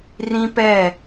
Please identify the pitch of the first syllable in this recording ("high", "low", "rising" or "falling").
high